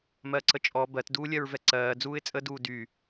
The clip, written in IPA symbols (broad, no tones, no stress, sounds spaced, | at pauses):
m ɜ ǀ ə t͡ʃʼ ɔ b ɜ t d uː lʲ ɜ ɹ v ɛ ǀ ɜː d͡z uː ɪ̯ t͡sʼ ə d uː d y